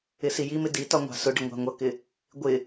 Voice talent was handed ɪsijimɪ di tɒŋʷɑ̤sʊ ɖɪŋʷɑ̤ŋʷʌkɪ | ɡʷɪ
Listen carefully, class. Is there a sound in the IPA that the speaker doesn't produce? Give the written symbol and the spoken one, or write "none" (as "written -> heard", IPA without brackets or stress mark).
none